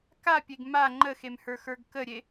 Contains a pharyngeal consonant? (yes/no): no